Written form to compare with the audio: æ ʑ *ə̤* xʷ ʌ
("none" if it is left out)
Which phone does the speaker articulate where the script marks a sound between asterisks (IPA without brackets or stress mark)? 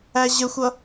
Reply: ə